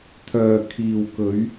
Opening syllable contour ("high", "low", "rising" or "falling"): low